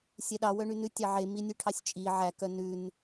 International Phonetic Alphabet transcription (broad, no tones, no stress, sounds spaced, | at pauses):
sʲ ɛ ɗ ɑ w œ ɳ y n ʉ tʲ ɑ ʕ e m i nʲ ʉ ʈʰ ɑ sʲ t͡ʃʼ i ʕ æ k œ n ʉ n